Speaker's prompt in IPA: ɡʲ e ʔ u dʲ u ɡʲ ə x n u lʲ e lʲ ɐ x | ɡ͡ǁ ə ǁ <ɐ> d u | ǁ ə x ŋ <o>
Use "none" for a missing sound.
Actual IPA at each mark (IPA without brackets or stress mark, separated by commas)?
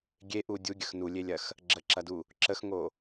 ɐ, o